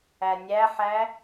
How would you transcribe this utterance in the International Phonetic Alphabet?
æ nʲ æ ħ æ

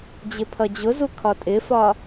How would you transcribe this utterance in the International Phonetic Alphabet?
d͡ʑ ɪ pʰ ʌ d͡ʑ ʊ z u kʰ ɒ tʼ ɪ f ɒ

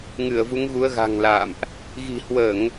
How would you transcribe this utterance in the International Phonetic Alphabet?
ŋ ɨ˧˩ ə̯ v u˨˦ ŋ ɣ u˨˦ ə̯ ɣ a̤˨˩ ŋ l a̰ː˧˨ m ʔ | ɣ i̤˨˩ h w əː˧˩˨ ŋ

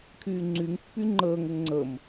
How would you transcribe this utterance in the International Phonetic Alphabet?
kʰ yː ŋ͡ǀ y ŋ pː y ŋ͡ǃ əː ŋ ɘ ŋ ŋ͡ǀ ə m

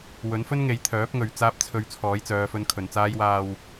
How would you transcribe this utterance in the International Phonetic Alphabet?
w ɵ˨˥ n f ɵ˥ n ŋ e˨˧ j t̪ʰ œː˨˥ p̚ ŋ ɵ˨ ɥ t͡s aː˧ p̚ t͡sʰ ɵ˨˧ ɥ t͡sʰ ɔː˨˥ j t͡s œː˨˧ f ɵ˧ n kʰ ɵ˨ n t͡s aː˧ j w aː˨ w

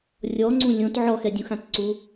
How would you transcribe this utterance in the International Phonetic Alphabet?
rʲ ɔ ŋ͡ǀ ũ lʲ õ t ʕ ɔ x ɛ dʲ ũ x ã t ǀ u

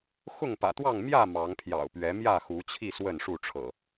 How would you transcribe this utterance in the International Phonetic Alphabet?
x ʊ˥˨ ŋ p ä̰˨˩ t̪ w ɑ˥˨ ŋ m j ä˥˨ m ɑ˨˦ ŋ pʰ j ɑ̰˨˩ ʊ̯ p ɥ ɛ˨˦ m j ä˥˨ x u˨˦ t͡ɕʰ i˥˨ s w ə˥˨ n ʂ u˥˨ ʈ͡ʂʰ ɤ̰˨˩

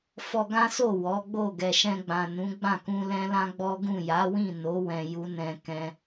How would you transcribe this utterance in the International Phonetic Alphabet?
f ɔ˧ ɡ ã˦ s o˦˨ w ɔ˨˦ ɡ͡b o˦˨ ɡ ɛ˨ ʃ ɛ̃˧ ɡ͡b ã˨ n ũ˨˦ ɡ͡b ã˦˨ k ũ˧ l ɛ̃˦ l ã˦ ɡ͡b ɔ˦ ɡ ũ˦˨ j a˨˦ w ĩ˦˨ n o˨˦ w ɛ̃˧ j u˦ n ɛ̃˧ k ɛ̃˧

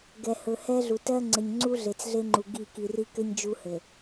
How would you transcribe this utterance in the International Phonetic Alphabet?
ɡ ɛ˨ h ɵ˨ h ɛ˦ ɮ u˨ t ɜ˦ ŋ͡ǀ ɘ˨ ɲ ŋ͡ǀ u˦ ɮ e˨ t͡s ɮ e˦ ŋ͡ǃ u˨ ɡ i˦˨ k i˨ r i˦ k ɘ˦ ɲ d͡ʒ u˦ h ɘ˨

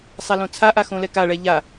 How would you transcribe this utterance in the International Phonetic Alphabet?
sˤ a l õ t͡sʰ a ʔ a x õ l ɛ k a ɭ ɛ ʎ a

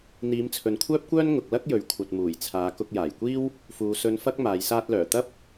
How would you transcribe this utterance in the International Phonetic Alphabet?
n̪ iː˨˧ m t͡sʰ ɵ˨ n kʷʰ œː˥ p̚ kʷ œː˥ n ŋ ʊ˨ k̚ l ɐ˥ k̚ j ɵ˨˥ ɥ kʷʰ ɐ˨ t̚ m uː˨˩ j t͡sʰ aː˨˧ k ʊ˧ k̚ j aː˨˩ j kʷ iː˥ w | f uː˨˧ s ɵ˧ n f ɐ˥ k̚ m aː˨˧ j s aː˥ t̚ l œː˨˩ t̪ ɐ˥ p̚

